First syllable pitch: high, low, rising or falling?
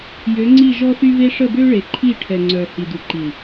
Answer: rising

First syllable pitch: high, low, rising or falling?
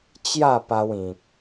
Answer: falling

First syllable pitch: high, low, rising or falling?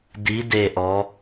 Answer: rising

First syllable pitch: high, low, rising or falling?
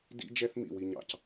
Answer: high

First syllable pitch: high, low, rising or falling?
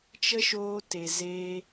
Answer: high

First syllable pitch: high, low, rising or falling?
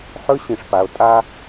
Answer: high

